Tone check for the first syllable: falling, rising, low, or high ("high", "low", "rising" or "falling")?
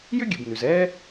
high